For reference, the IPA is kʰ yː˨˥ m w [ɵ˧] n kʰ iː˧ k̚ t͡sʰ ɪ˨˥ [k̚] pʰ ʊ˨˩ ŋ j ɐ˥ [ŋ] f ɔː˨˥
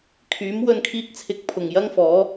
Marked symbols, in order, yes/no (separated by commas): yes, yes, yes